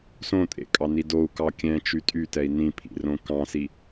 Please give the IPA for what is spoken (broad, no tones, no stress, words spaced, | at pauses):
sõ tʼḛkʼɑni dou̯kɑ kʲɛ̃t͡ʃy tʼytɛi̯ nĩpʰḭrõ kɑ̃si